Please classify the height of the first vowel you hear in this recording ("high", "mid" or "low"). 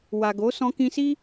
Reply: low